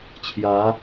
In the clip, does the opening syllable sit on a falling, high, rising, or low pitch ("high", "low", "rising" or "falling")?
rising